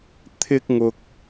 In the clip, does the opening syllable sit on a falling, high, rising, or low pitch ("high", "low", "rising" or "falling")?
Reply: high